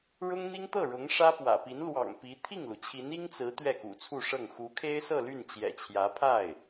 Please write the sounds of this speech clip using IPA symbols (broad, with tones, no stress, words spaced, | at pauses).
ɻʊ˥ŋn̪i˥ŋ t̪ɤ˥˩ɻʊ˧˥ŋ ʂä˥pwä̰˨˩ pi˧˥nlwɑ̰˨˩ŋpi˧˥ t̪ʰi˥˩ŋlu˩t͡ɕʰi˧˥n i˥ŋt͡sɹ̩˧˥ t̪ɥɛ˥˩kṵ˨˩t͡sʰu˥˧ʂɤ˥˩ŋ xu˧˥kʰe˥ɪ̯sɤ˥˧ ly˥˩nt͡ɕjɛ̰˨˩t͡ɕʰjä˧˥ pʰa˥˩ɪ̯